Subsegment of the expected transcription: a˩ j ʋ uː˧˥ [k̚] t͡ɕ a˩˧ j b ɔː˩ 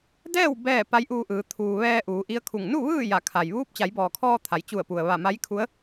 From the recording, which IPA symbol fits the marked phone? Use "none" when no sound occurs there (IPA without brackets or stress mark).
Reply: p̚